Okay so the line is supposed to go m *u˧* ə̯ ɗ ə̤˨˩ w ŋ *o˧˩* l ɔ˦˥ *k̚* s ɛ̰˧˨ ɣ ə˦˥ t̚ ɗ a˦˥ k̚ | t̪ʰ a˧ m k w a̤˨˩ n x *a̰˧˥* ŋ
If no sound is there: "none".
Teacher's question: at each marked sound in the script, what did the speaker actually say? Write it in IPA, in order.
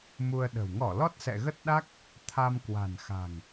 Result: u˧, ɔ˧˩, t̚, a̤˨˩

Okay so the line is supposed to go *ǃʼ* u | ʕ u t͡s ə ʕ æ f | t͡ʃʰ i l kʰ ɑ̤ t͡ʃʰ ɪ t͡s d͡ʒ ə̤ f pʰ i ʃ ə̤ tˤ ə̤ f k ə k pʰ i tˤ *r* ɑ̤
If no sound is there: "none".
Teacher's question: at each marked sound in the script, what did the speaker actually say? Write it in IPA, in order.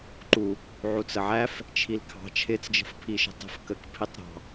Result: ǃ, ɾ

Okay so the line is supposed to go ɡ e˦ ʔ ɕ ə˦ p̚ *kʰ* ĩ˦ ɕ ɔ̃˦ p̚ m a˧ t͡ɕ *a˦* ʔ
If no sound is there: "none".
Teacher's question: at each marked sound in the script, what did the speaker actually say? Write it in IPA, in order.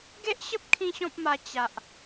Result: kʰ, a˨

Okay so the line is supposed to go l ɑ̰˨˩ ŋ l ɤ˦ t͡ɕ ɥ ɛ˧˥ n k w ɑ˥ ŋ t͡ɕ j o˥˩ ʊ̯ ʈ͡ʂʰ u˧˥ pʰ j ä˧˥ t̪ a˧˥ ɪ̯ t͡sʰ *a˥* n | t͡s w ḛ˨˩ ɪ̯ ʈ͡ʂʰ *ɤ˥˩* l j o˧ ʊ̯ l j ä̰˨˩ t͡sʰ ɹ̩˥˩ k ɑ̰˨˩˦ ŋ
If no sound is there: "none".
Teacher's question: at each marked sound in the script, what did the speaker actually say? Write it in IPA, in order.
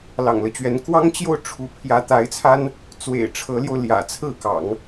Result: a˥, ɤ˧˥

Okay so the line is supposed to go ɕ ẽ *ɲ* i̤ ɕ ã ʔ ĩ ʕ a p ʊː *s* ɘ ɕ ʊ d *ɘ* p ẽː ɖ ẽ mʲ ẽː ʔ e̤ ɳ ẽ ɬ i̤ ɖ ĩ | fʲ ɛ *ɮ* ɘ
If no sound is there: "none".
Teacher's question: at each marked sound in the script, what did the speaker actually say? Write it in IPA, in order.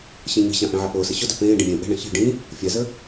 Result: ɲ, s, ø, z

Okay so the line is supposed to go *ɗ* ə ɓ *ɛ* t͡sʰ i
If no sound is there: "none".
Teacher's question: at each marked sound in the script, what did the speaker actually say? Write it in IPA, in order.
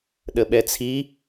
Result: ɗ, ɛ

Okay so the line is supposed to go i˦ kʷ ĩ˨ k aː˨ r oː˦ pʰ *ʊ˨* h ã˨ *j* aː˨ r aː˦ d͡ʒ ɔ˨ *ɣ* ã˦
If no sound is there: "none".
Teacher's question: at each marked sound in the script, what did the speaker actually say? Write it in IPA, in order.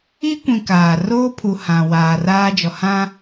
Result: u˨, w, h

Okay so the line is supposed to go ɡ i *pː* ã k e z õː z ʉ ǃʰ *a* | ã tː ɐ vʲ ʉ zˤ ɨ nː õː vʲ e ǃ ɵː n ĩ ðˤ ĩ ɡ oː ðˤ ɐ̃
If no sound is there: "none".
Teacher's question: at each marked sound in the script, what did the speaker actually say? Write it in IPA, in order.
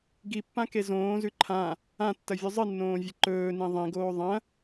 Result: pː, ã

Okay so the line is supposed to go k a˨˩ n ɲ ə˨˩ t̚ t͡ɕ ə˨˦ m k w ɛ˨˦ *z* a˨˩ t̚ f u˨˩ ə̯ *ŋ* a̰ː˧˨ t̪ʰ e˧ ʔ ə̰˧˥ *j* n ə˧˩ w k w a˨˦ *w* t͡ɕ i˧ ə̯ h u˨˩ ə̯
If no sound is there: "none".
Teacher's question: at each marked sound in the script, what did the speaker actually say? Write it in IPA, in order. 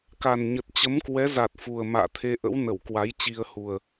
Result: z, m, w, j

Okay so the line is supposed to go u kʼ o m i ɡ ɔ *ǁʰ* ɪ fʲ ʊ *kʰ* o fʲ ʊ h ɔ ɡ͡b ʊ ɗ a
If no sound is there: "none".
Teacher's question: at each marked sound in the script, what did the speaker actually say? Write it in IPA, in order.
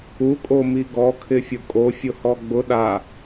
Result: kʰ, kʼ

